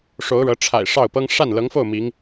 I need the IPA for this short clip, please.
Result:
ʂ o˧˥ ʊ̯ ɻ ɤ˧˥ ʈ͡ʂʰ a̰˨˩ ɪ̯ ʂ ɑ˥˩ ʊ̯ p ɤ˥ ŋ ʂ a˥˩ n l ɤ˧˥ ŋ f o˥˩ ʊ̯ m i˧˥ ŋ

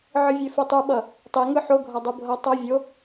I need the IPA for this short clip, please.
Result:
ʕ ɯ vʲ e f u tˤ u ɓ ʌ | tˤ i ŋ ɯ ħ o ɡʱ ʌ dˤ ɯ bʱ ʌ tˤ ʌ vʲ o

